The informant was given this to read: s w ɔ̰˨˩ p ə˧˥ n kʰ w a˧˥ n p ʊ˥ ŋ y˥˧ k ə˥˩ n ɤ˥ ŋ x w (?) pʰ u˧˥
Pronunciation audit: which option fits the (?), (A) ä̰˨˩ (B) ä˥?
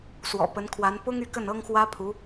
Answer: B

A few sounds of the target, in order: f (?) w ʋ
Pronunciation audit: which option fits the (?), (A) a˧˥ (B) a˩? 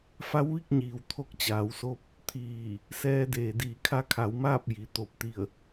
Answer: A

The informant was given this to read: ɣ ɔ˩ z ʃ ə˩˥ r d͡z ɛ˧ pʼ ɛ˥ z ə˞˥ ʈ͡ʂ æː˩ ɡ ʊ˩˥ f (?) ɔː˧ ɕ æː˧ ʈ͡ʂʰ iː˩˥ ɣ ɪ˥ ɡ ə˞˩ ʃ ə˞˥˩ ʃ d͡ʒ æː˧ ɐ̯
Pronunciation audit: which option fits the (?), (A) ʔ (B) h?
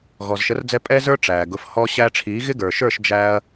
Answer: B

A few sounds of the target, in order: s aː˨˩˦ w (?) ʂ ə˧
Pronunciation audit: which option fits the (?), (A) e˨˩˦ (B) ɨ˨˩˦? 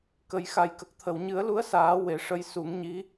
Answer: A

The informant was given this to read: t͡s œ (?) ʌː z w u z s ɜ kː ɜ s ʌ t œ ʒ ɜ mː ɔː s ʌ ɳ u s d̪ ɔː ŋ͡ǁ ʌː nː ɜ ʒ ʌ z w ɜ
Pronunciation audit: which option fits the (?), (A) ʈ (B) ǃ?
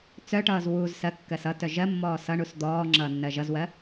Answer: A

